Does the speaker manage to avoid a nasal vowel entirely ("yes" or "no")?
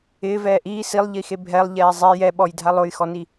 yes